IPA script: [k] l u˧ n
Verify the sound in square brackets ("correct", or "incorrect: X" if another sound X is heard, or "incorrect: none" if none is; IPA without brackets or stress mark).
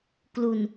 correct